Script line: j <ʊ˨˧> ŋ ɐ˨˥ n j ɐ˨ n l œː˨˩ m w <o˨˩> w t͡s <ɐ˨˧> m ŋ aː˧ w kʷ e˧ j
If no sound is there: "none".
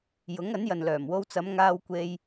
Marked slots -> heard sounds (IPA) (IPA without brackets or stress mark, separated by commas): ʊ˨˥, o˧, ɐ˨˧